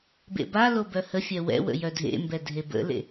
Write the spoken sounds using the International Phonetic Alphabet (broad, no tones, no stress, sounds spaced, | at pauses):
b ḛ b a l o b œ h ə fʲ œ w ɛ̰ w ə̰ j œ dʱ ḛ m b ɛ dʱ e b ə̰ l ḛ